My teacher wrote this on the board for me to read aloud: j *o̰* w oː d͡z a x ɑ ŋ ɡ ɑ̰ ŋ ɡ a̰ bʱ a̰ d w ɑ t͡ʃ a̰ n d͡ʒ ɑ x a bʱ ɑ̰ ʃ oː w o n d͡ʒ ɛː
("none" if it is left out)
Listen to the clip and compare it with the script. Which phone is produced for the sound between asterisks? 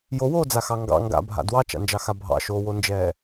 o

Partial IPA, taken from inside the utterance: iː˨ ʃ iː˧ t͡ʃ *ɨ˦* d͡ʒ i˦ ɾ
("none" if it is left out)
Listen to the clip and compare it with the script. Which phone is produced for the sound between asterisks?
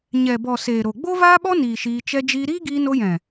ɛ˦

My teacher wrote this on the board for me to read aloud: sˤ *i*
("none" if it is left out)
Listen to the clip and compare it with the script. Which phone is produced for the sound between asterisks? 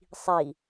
i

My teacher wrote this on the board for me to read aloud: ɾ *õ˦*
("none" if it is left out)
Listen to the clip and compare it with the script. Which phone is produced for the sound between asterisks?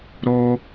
o˦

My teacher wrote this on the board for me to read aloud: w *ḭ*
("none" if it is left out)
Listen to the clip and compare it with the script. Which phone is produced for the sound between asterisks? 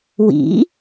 ḭ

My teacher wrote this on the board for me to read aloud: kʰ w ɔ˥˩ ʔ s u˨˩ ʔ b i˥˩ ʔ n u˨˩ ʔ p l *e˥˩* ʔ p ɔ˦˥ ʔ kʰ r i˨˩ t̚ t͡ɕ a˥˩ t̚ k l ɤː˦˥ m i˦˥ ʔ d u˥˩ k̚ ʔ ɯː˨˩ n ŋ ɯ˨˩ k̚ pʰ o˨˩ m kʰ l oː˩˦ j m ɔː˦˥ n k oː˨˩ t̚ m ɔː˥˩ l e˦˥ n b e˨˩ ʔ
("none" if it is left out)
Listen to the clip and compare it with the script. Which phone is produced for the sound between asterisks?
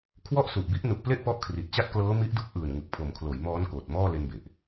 e˥˩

